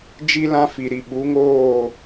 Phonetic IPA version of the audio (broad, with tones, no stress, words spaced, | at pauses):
d͡ʒi˦lã˦fi˨ɾi˨ ɓu˨˦ŋoː˦˨